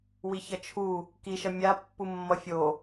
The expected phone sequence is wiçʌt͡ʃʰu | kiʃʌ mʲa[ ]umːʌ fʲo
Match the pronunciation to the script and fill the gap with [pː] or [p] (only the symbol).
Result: pː